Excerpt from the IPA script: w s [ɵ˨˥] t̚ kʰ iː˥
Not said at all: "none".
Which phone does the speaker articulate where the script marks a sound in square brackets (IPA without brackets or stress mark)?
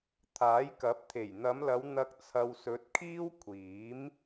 ɵ˨˥